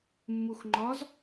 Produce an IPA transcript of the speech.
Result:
mː u x ŋ͡ǃ ɒ z

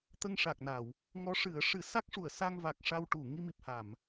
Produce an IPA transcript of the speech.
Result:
t̪ ə˧ ŋ ʂ a˨˩ k̚ n a˨˩˨ w | ŋ ɔ˧˥ ʂ ɨ˨˩˦ ə̯ ʂ ɨ˨˩˦ s a˦˥ k̚ ʂ u˨˩˨ ə̯ s a˧ ŋ v a˨˩ k̚ ʂ a˧ w ʈ u˨˩˨ ŋ i˧ m i˨˩ p̚ h a˨˩˨ m

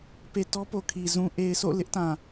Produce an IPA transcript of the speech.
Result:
p e˨ t ɔ˦ p o˨ kʰ i˨ z ũ˨ ʔ e˨ ɪ̯ s o̰˦˨ l ɪ˦ ʔ t ã˨

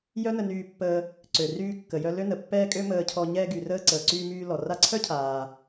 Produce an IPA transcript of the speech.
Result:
j œ˥ n ə˧ n yː˧ pː əː˧ | ǀ ø˩ r yː˧ kː ə˩ j œ˧ l ø˥ n ə˩ pː ɛː˥ kʼ ø˥ m əː˧ cʰ ɔ˧ ɲ ɛː˧ ɡ y˩ r əː˧ ǀ əː˩ ǀ yː˧ m yː˧ l ɔ˩ r a˧ ǀʰ œ˥ cʰ aː˩

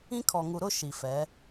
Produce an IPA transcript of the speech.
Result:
ĩ˦ kʰ ɔ˨ ŋ u˨ ɾ ʊ˦ ʃ i˨ f ɛ˨˦

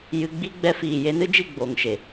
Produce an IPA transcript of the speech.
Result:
j ɨ˧ ɡ͡b i˦ ɡ͡b ɛ˧ f iː˨ j e˧ n ɨ˦ d͡ʒ i˦˨ ɡ͡b oː˨ ŋ ʃ e˨

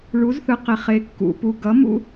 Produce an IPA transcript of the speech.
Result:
ɭ u˩˥ z θ ɯ˩ q e˩ χ e˩ kː ṵ˩ p u˩ ɡ ʌ˩˥ m ṵ˧

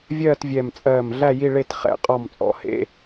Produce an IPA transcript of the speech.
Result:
vʲ ɜː˥˨ t vʲ ɛ˧˩ m t͡sʼ ɜː˧˩ m ɮ æ˥˨ j i˥˨ ɭ e˥˨ t χ ɛ̰˧˩ qʼ ɔ˧˩ m t͡sʼ ɔ̰˧˩ h ḛ˧˥˧

